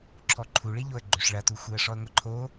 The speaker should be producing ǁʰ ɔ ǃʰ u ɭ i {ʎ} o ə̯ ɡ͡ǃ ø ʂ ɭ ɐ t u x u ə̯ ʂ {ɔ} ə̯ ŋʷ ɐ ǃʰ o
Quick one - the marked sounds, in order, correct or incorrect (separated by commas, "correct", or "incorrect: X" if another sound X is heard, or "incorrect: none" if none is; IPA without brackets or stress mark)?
correct, correct